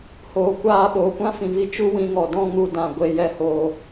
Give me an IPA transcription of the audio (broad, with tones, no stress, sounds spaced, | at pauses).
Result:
h oː˨ kʷ aː˧ ɓ oː˨ kʷ ã˦ f ĩ˨ v i˧ t͡ʃ u˦ w ĩ˧ ŋ ɔ˨ d ɔ̃˦ ŋ u˦ d ã˧ ɡʷ e˧ j ɛ˦ h oː˧